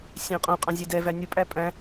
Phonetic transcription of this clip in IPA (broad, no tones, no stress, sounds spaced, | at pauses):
sʲ æ̃ qʼ õ qʼ ɑ̃ zʲ ɛ d ɛ v æ nʲ ʊ pʼ æ pʼ æ̃